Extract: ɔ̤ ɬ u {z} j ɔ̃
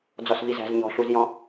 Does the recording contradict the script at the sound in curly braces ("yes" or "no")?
no